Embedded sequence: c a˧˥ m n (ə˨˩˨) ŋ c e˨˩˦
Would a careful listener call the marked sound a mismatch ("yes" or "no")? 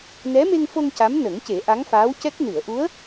yes